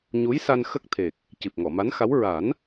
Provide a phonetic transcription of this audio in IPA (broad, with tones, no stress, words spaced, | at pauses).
ɲu˧˥jsa˧n xə˦˥k̚t̪ʰe˨˩k̚ | ci˨˩p̚ŋɔ˨˩˨ma˧˥nxa˧˥w ɹa˨˩˦n